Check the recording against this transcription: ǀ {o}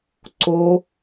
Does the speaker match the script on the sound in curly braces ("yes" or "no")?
yes